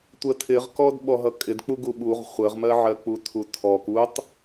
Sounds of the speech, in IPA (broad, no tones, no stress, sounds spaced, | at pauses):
tʷ ə tʰ ɪ ʁ k ɔ d ɓ ɔ ɦ ʌ kʼ ɪ d k͡p u ɡ u ɓ u ʁ χʷ ə ʁ m ɜ ʕ ɜ k͡p u tʰ u tʰ ɔ k u tˤ